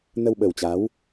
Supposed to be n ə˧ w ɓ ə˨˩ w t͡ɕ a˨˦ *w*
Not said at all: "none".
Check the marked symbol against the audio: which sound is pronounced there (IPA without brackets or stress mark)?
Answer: w